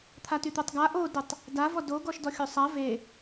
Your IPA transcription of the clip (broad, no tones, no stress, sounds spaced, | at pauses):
t̪ʰ a t y t̪ œ tˤ ɡ a ʔ o d ə tˤ | d a v ɔ d o ɡ ɔ ʃ d ɔ xʲ o sˤ a v e